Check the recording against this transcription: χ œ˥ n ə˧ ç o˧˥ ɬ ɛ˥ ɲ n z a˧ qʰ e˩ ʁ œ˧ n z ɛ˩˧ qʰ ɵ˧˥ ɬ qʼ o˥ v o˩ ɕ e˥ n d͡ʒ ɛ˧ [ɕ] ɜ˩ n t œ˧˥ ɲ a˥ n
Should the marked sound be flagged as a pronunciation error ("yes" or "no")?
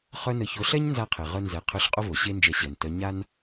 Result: no